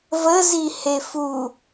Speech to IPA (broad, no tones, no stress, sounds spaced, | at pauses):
v ə z i h e f u